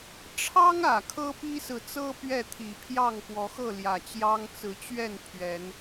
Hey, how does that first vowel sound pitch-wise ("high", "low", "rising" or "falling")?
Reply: high